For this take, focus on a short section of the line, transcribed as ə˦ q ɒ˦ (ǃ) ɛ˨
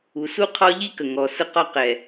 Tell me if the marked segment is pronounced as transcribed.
no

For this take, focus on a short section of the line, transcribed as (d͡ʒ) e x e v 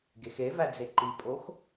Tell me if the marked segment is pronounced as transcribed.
no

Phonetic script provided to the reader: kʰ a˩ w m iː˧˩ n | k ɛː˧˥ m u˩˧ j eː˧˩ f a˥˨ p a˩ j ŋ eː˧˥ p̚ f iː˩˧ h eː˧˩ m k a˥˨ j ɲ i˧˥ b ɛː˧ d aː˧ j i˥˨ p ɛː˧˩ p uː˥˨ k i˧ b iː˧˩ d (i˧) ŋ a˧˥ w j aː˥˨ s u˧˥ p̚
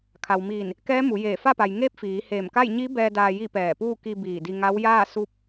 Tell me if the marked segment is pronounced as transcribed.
yes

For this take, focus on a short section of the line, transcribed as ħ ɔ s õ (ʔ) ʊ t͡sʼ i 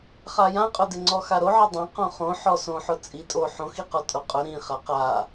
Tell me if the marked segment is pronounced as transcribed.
no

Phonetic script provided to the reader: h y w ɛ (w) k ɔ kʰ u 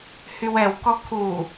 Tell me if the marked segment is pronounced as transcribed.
yes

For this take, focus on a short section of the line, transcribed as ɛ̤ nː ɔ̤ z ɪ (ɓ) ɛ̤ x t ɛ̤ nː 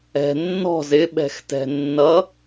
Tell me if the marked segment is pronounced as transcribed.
yes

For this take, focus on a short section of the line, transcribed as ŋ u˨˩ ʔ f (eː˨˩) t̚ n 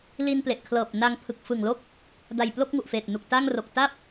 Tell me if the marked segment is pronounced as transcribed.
yes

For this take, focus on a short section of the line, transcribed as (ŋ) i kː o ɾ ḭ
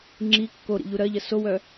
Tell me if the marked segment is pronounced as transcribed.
no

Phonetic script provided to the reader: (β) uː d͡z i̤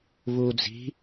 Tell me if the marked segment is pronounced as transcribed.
yes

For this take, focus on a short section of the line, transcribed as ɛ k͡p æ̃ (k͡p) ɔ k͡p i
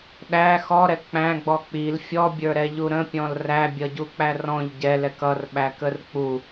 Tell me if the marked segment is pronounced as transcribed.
no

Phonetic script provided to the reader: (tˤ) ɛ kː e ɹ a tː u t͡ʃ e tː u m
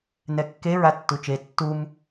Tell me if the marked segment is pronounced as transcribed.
no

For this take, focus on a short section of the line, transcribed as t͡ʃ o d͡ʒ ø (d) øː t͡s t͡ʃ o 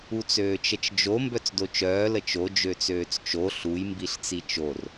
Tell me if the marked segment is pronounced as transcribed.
no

